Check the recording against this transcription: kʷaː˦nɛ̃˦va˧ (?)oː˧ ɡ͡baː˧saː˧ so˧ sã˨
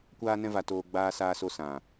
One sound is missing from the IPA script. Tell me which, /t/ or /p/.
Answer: t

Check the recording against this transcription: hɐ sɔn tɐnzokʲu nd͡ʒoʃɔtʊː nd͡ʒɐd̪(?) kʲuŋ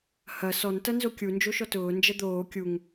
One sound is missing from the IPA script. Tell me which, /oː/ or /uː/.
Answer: oː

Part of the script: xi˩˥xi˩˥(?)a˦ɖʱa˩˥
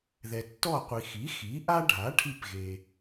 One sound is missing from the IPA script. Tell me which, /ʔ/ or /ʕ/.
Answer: ʔ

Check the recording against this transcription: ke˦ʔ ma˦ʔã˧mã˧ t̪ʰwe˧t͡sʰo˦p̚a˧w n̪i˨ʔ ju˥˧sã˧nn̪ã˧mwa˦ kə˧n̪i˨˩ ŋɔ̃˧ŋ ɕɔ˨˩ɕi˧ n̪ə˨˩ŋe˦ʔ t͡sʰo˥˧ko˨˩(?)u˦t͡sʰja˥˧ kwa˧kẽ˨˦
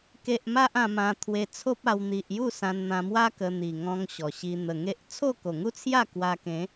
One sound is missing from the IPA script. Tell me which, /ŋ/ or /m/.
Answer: ŋ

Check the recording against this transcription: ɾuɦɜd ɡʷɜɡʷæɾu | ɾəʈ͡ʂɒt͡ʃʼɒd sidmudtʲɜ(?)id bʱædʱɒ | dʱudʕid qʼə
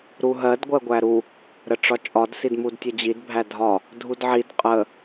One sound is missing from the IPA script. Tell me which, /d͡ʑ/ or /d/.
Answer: d͡ʑ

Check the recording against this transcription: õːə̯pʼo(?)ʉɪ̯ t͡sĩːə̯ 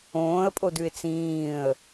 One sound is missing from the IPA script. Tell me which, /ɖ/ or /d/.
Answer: d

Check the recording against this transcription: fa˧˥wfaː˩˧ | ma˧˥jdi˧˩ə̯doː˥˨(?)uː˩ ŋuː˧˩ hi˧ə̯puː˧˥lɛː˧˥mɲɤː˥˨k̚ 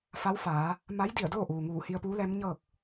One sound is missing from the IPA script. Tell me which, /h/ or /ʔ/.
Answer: ʔ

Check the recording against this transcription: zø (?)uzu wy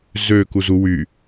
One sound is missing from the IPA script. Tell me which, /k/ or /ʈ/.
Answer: k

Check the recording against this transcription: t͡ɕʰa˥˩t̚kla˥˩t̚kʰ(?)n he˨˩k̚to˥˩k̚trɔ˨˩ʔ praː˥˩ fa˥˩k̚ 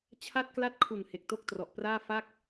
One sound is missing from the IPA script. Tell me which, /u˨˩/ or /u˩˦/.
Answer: u˨˩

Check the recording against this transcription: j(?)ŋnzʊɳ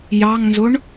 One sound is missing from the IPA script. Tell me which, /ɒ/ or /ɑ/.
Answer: ɑ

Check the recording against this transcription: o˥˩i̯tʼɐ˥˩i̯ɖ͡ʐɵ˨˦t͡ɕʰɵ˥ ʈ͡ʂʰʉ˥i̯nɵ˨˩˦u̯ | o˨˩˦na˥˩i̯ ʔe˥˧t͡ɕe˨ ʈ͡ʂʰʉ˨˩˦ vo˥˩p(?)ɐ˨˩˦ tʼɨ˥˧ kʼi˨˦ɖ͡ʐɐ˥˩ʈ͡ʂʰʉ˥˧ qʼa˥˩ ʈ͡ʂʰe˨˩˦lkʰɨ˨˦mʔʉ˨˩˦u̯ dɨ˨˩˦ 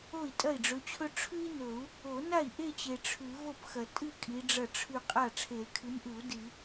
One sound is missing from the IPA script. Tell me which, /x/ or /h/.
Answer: x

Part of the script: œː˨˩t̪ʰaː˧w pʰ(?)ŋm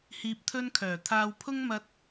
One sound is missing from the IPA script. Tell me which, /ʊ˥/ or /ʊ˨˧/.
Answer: ʊ˥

